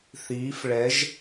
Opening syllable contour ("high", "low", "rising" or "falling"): rising